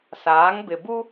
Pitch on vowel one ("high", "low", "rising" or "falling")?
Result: rising